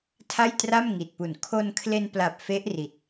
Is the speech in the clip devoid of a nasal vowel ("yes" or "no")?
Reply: yes